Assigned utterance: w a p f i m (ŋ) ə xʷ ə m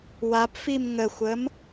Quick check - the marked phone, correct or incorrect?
correct